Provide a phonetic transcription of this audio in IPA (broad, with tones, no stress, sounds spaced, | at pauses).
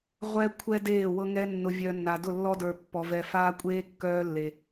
ʁʷ ɛ˦ kʷʰ ɛ˦ d eː˦˨ w ɤ˦ ŋ ɛ˦ nː ʊ˨ vʲ œ˨ nː a˨ d ʊ˦˨ lː ɔ˦ d ə˞˨ pː ɔ˨ v ɛ˨ f aː˦ kʷʼ eː˦ kː œː˦ lː e˨